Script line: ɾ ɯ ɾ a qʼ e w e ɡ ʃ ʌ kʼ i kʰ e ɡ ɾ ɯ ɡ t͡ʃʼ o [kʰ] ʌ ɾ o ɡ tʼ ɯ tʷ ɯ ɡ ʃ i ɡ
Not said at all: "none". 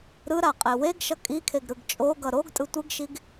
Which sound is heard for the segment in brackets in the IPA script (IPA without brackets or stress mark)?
ɡ